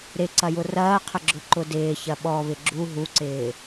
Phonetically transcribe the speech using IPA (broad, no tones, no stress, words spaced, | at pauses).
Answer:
ɾɪǀɐjʊ rɐːqʰə ɡ͡ǁʊǃʊdɪːçɐ ɓɔβɪ ɡ͡ǁu ɦuǀɪː